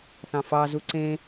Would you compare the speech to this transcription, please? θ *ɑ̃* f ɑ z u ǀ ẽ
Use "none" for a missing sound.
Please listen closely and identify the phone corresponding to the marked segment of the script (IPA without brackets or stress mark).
ɑ̃